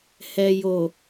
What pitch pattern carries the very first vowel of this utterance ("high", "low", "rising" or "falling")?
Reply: low